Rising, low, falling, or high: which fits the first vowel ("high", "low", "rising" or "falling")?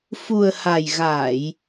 low